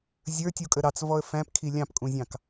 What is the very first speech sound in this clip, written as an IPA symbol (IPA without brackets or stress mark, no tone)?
zʲ